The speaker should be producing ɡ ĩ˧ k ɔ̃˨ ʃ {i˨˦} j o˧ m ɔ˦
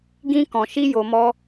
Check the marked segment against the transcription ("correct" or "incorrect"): incorrect